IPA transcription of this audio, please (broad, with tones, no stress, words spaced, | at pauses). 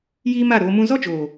jiː˦ma˦˨ɾoː˧mũ˦ zɔ˦d͡ʒoː˨